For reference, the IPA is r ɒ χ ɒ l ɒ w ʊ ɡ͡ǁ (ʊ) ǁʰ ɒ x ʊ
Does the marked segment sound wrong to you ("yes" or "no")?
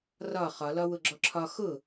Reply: yes